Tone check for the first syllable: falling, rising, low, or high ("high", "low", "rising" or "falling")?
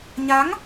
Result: rising